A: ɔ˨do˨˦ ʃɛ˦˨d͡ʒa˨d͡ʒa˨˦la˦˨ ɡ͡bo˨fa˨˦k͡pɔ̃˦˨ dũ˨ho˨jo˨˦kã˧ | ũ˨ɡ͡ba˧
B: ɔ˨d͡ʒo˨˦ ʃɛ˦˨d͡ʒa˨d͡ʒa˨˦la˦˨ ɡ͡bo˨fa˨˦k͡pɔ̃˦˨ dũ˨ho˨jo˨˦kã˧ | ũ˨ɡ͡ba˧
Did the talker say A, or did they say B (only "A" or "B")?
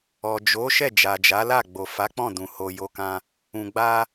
B